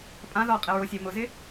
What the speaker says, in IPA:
pʼ ã ð ɔ qʼ ɪ ɹ o sʲ e m ʊ z ɪ

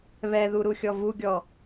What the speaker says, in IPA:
β ɛ ð u ɾ u xʲ ɔ v u ɡʲ ɔ

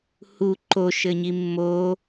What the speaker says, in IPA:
h u ǃ o ʃ ɘ ɲ i mː o

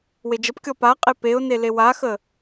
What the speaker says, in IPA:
w e d͡ʒ ə p kʲ ɔ p a qʼ e p e ʊ̯ n e l e w a x ə

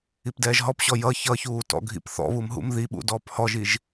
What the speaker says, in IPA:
i p d ɛː ʒ ɦ ɔ p ɕ ɔ j ʌ ç ʌ ç uː t ɔ̰ ɡʱ ḭ p θ ɔ̰ β u m ɦ ṵ m ð i ɓ ṵ d ɔː p h ɔ ʒ i ʒ

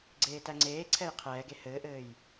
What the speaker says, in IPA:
ɡ͡ǀ eː t æ ŋ͡ǀ eː ǀʰ ɛ j qʰ ɛː ɡ e h ɘː ʔ ɘː j

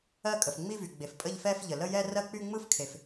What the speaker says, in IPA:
ɜ˥˧ kʼ ə˩ f ŋ͡m i˥˧ v y˩ ɡ͡b e˩ f pʼ ə˥˧ ʎ f ɛ˥˧ f ʎ ə˩ l ə˥˧ j ɛ˥˧ r ɜ˥˧ k͡p y˥˧ ŋ͡m ɯ˥˧ f kʰ e˩ f

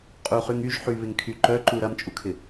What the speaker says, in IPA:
qʼ u χ y ŋ y ʒ ħ y β ɪ ŋ kʰ y ǃ œ ǃ u ɾ ɐ m t͡ʃʼ u kʰ ɪ

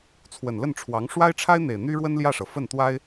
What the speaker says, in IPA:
t͡sʰ w ə˨˩ n l ə˥˩ n ʈ͡ʂʰ w ɑ˧˥ ŋ ʂ w a˥ ɪ̯ ʈ͡ʂʰ a˥ ɪ̯ n̪ e˨˩ ɪ̯ n̪ y˥ ɻ w ə˥ n l j ä˥˩ ʂ ɤ˩ f ə˥˩ n t̪ w a˥ ɪ̯

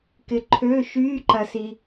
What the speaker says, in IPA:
k ɪ˨ ǃʰ ø˧˥˧ ʃ yː˧˥˧ ǃ ɐ˨ s i˨

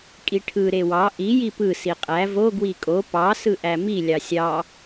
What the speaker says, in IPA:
kʼ i ʈʰ ɯ ɾ e w ɑ ʔ i j i p ɯ s i qʼ æ v o ɡ w i kʼ o p ɑ s ɯ ʔ æ m i lʲ ɑ sʲ ɑ

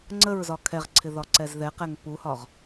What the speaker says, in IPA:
ŋ͡ǀ ə ɹ z ɒ kʰ ɛ ʁ ǀʰ ɪ ð ɒ ǀ ɛ z ð ɛ q ɛ ŋ p u h ɒ ʁ

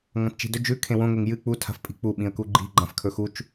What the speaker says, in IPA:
ŋ ɐ̃ t t͡ʃ i̤ d ɵ d͡ʒ ʉ kʰ ẽ w õ ŋ e ŋ j ɨ k͡p u tʰ a̤ f pʼ i̤ k͡p u ɓ ĩ ə̯ k u ɡ͡ǃ i̤ ɡ͡ǃ ã f kʰ ɵ x u t͡ʃ

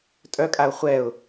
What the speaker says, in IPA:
tʼ œ kʼ a ʊ̯ χʷ ɛ ʊ̯

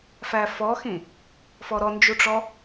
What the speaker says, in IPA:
f æ f ɔ x ĩ | f ɔ ɾ ɔ n d͡ʒ u ʈ͡ʂ ɔ

